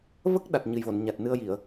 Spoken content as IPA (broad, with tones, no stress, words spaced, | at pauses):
və˦˥k̚ɗa˨˩t̚ ɲɨ˨˩jvo˨˩˨nɲa˨˩t̚ nɨ˧ə̯ji˨˩˨ə̯